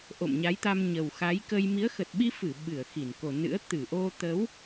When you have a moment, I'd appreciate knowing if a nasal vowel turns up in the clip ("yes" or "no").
no